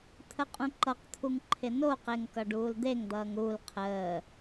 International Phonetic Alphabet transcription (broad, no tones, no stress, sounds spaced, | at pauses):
t̪ʰ ə qʼ ũ ǃ ʌ q t̪ʰ u ŋ ǃʰ ɪ n o q e ŋ k ʌ ɖ uː l d̪ e ŋ d̪ ʌː ŋ ɾ u l qʰ əː